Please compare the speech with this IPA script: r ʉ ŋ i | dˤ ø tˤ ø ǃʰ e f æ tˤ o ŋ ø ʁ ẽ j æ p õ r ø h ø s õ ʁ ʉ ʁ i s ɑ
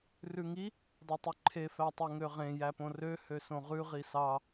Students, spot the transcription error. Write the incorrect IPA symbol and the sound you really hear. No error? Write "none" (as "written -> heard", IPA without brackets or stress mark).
none